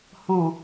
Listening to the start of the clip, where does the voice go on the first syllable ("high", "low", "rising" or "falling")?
low